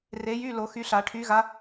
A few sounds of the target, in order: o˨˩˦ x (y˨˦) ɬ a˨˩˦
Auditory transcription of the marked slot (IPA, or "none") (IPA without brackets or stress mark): y˨˦